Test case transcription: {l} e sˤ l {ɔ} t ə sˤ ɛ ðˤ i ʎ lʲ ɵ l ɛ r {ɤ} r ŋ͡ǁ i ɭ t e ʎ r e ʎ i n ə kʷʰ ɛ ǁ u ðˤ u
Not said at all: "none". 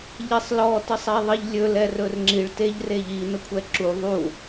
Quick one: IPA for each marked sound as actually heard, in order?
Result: ʎ, ɔ, ɵ

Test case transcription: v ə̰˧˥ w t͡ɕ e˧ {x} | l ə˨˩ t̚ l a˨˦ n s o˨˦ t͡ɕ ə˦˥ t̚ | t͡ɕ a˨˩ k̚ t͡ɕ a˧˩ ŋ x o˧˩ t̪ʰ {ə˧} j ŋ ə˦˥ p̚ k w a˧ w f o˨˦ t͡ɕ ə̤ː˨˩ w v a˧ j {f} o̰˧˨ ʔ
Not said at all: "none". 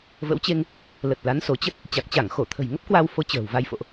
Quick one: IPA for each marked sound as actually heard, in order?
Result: ŋ, ə̤˨˩, f

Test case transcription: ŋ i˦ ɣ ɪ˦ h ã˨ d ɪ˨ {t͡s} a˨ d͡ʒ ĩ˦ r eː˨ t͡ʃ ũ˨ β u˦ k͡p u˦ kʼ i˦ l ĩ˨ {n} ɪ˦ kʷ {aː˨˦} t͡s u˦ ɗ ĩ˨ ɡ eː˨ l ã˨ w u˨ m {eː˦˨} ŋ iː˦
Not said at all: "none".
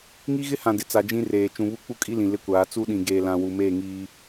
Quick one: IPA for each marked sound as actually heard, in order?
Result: t͡s, l, aː˨˦, eː˦˨

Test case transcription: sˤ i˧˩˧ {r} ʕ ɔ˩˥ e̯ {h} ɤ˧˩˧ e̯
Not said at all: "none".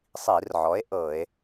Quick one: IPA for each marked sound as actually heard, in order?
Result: r, ʔ

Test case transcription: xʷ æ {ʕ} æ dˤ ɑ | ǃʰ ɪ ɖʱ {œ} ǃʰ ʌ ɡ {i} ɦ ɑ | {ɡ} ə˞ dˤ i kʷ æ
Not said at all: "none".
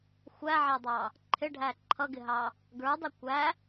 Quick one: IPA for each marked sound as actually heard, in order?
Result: ʕ, æ, ɪ, ɡ

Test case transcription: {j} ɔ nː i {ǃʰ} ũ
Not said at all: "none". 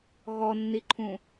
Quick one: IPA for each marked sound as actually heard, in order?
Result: ɣ, ǃʰ

